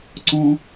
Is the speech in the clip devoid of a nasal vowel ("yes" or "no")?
no